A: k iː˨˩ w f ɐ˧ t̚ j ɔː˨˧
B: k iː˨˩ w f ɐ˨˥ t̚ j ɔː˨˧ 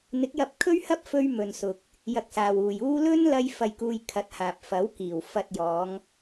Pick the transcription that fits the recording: A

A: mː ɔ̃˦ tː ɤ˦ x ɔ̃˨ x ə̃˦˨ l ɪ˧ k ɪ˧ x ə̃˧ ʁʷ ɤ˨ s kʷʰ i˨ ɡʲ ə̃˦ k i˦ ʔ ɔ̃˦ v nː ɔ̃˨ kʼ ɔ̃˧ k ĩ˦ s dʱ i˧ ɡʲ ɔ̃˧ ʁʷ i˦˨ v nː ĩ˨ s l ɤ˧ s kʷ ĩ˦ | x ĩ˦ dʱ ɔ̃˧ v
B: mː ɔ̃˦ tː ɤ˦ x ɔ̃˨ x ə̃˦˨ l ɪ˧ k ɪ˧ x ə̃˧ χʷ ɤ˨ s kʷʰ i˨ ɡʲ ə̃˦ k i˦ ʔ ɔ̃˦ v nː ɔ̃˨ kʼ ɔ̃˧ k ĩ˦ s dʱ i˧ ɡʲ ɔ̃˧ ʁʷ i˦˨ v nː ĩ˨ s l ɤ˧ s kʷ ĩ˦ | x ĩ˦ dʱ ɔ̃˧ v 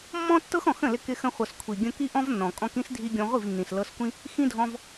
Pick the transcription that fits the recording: B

